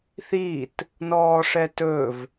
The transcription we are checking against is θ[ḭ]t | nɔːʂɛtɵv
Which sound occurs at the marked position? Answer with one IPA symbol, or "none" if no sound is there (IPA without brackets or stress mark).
i